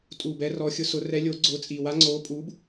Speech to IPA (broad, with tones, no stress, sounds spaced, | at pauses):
tʼ u˨˩ b ɛ˨˥ r ɔ˨˥ xʲ ʊ˨˥ s ʊ˨˥ r ɛ˨˥ lʲ oː˨˥ ɡ͡ǀ ʊː˨˥ t͡sʼ iː˨˩ w a˨˥ ŋ͡ǀ oː˨˥ pʼ u˨˥ b